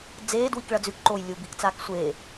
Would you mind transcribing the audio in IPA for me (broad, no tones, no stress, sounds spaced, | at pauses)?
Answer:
d͡z eː d w i k ɭ ɐ d͡z ʉ k ǃ oː j lʲ u b i k t͡s aː k sʷ e